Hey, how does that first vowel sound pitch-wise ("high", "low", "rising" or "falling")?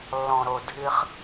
low